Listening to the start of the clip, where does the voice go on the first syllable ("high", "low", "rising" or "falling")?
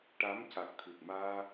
rising